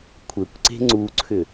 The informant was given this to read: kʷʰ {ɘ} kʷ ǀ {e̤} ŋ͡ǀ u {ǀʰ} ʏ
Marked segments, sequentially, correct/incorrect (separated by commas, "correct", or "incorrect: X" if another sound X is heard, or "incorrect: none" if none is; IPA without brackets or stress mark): correct, correct, correct